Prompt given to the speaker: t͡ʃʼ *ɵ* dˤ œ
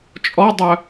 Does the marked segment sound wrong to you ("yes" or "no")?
yes